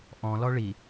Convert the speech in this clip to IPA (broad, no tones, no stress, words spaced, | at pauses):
ʔɔ̃lɔ ɭi